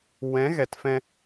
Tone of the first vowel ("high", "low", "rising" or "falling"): rising